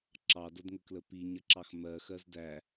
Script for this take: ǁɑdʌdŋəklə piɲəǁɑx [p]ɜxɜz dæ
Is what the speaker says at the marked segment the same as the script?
no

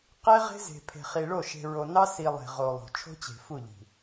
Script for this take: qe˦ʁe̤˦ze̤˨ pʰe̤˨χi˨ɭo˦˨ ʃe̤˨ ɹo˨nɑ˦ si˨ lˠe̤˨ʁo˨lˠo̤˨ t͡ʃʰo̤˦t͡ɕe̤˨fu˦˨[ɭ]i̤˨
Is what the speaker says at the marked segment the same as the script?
no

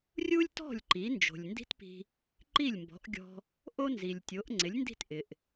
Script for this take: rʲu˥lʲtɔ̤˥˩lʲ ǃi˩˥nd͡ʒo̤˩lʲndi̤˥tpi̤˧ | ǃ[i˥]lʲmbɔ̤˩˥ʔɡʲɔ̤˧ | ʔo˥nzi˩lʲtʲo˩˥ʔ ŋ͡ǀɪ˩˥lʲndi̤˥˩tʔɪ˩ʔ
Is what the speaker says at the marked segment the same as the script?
no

